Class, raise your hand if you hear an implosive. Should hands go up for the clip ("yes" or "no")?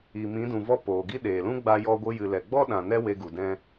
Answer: yes